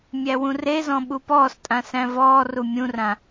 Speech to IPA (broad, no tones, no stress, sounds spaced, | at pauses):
mʲ æ w ũ r e z ɔ̃ ɓ u p ɔː s tʼ ã s æ̃ v ɔː r u mʲ ũ r ã